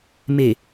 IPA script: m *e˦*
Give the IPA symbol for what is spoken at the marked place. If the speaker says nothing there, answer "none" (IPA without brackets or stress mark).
e˨